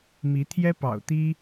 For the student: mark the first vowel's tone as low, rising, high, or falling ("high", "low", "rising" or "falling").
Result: rising